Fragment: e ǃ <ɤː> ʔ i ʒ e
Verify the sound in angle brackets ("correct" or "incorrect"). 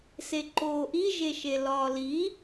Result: incorrect